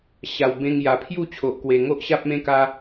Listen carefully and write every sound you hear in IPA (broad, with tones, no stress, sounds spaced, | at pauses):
ɕ a˨˩ w b ẽ˧ ŋ j a˨˩ pʰ j u˥˧ t͡ɕʰ o˨ ʔ k w e˨˩ ŋ o˦ ʔ ɕ a˦ p̚ m ẽ˦ k a˦